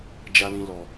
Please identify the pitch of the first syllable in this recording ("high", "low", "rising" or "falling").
high